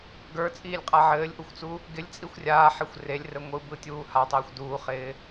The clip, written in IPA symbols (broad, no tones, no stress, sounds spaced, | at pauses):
ɡ ə˞ t͡sʼ iː lʲ qʼ a ʕ ɘː lʲ ʔ u xʷ t͡s u | ɡ ɪ lʲ t͡sʼ i xʷ rʲ aː ħ e xʷ r e lʲ r ɘ ŋʷ ɯ b ɯ tʲ uː h a tˤ iː xʷ d uː χ ɪː